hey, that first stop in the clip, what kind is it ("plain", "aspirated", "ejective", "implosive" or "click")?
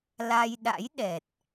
implosive